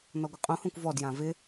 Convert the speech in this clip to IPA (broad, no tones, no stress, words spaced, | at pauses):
nɔɡʷɪqʼũhõkʷ vɔdjã vɪ